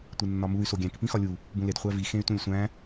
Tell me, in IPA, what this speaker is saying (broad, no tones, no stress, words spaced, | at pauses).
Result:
tʷenːɒmuy̯ soɡʲæ̃k pĩxɒlʲu | bũled χʷævi xẽy̯tũlʲsʷæ̃